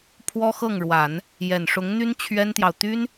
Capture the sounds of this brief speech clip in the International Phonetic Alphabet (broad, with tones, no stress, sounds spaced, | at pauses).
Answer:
pʰ w ɔ˥ x ɤ˥˩ ŋ ɻ w a˨˩˦ n | j ɛ˨˩ n ʂ ʊ˧˥ ŋ n̪ y˥ n t͡ɕʰ ɥ ɛ˥ n t̪ j ɑ˨ ʊ̯ t̪ y˥ n